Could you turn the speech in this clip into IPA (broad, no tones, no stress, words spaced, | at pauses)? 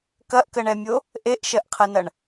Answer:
kɐʔkəɳɛmʲo | ʔeʔʃɜʔqʰɐnɐɳ